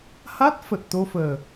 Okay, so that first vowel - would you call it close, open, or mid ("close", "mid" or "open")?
open